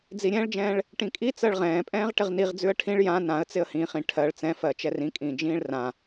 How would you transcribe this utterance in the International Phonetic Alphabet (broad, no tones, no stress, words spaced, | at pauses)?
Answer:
d͡ziɾʲɛ̃ːɭd͡ʒɛ̃ːɭ | ʈĩkʼi t͡sɜɭʁɛ̃ːpʼɛ̃ːʁ ʈɪʁniʁd͡zʉə̯ ʈʰĩɭ jã nãə̯t͡sɪə̯ hĩχĩ ʈʰɜɭ t͡sɛ̃fɜ t͡ʃɛrĩkʼĩː d͡ʒĩːɭrã